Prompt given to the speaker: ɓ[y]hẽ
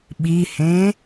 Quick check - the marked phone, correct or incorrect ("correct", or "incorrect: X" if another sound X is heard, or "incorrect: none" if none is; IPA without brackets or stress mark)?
incorrect: i